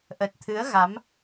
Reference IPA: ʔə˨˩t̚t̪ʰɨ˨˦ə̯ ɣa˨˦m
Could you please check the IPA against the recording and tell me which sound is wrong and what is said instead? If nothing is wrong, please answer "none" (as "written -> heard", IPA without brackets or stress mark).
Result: none